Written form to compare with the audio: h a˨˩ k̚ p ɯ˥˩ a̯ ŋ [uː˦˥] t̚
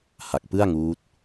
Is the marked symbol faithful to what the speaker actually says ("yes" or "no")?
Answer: yes